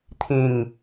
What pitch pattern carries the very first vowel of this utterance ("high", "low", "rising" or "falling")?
low